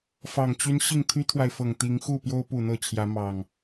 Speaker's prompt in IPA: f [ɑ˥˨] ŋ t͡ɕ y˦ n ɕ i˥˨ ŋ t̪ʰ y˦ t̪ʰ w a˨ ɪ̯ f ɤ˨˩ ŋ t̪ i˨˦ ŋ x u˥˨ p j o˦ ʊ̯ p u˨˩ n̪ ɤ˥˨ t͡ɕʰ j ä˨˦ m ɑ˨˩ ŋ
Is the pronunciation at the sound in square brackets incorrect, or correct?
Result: incorrect